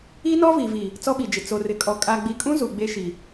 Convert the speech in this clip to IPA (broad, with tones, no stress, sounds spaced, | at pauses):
i˦ n ɔ˦ v i˨ v i˨ | t͡s ɔ˦ ɓ i˨ d͡ʒ ɪ˨ t͡s o˨ r ɪ˨ kʼ ɔ˨ kʼ a˨ ɡ͡b i˨ kʼ ũ˦ z u˨ ɡ͡b e˦ ʃ i˨